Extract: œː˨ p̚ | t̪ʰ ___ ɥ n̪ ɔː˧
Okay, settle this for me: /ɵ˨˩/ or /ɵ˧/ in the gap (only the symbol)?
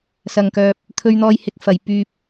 ɵ˧